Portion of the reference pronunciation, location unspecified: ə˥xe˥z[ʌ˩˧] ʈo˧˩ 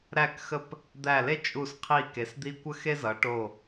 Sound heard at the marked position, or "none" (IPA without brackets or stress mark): ʌ˩˧